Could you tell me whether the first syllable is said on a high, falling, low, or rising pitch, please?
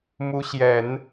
rising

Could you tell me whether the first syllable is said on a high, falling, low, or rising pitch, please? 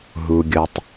low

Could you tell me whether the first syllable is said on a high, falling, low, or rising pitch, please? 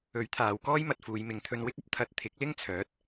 rising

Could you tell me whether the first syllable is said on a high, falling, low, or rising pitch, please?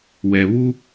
low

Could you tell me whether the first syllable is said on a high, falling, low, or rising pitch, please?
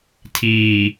low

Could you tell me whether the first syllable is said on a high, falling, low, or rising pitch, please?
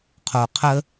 low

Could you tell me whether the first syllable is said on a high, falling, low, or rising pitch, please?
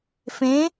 rising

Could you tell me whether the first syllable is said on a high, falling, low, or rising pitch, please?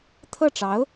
falling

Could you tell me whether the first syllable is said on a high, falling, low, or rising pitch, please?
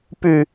low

